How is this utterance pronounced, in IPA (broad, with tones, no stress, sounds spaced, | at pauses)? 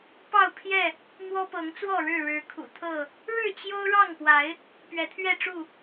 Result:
p ɑ˥˨ ʊ̯ pʰ j ɛ˥˨ | m w ɔ˦ p ɤ˨˦ ŋ t͡s w ɔ˥˨ ɻ ɻ̩˥˨ ɻ ɻ̩˨˦ kʰ ṵ˨˩ t̪ʰ ɤ˥˨ | ɻ ɻ̩˥˨ t͡ɕ j o˦ ʊ̯ ɻ ɑ˥˨ ŋ p w a˨˦ ɪ̯ | p ɥ ɛ˨˦ t̪ʰ ɥ ɛ˥˨ ʈ͡ʂ u˥˨